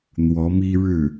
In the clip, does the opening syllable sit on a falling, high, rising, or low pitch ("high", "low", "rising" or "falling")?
rising